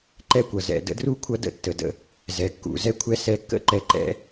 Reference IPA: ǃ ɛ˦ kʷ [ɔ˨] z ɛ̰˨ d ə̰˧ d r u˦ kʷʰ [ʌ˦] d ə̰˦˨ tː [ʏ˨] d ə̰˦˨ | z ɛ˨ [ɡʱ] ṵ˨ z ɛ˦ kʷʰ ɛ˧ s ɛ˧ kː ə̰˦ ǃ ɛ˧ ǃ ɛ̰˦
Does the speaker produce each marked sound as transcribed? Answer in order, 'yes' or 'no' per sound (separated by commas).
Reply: no, yes, no, no